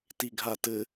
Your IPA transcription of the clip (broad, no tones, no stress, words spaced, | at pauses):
tiɡʱatɘ